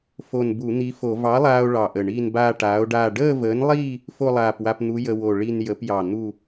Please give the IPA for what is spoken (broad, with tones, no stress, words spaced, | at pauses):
fo˧˩nbu˧˩˧n̪i˨˥fo˧˩˧ vɑ˨˥lˠaː˧o̯ ɭɑ˧˩ʔə˧˩ɳiː˥˧n baː˥˧ʈaː˨˥o̯ɖaː˥˧ ɖəː˥˧vəː˨˥nlˠiː˥˧ | fo˥˧lˠaː˧˩pwa˧pn̪u˨˥ jə˧wo˧˩ ɭi˥˧n jə˨˥pjɑ˧˩ n̪u˥˧